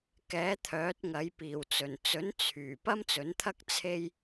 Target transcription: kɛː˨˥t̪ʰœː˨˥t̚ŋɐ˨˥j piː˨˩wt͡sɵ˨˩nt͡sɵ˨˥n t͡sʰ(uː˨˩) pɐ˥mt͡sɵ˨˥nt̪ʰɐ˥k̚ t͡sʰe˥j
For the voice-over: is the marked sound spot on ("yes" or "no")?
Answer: no